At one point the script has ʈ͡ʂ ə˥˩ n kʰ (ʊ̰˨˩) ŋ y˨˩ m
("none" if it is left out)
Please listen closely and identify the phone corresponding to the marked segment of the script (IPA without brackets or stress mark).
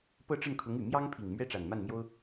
ʊ˧˥